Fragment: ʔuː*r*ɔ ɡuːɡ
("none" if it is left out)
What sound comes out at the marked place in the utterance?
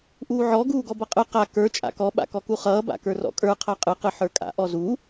ʕ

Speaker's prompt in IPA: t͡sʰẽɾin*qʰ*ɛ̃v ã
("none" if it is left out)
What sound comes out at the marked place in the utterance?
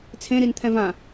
t̪ʰ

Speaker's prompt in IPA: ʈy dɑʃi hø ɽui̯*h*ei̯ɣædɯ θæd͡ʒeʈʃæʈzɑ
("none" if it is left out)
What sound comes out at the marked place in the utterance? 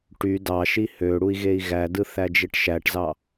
ɣ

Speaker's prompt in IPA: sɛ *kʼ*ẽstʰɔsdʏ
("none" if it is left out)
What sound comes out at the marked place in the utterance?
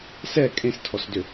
kʼ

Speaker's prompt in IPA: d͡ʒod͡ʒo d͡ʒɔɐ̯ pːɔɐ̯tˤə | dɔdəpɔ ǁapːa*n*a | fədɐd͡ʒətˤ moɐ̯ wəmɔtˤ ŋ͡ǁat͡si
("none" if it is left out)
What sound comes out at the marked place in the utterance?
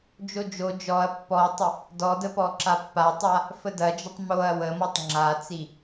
tˤ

